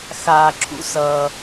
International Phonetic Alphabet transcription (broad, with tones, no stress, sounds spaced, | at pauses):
x aː˩ ǁʰ ṵ˧ s ʌː˩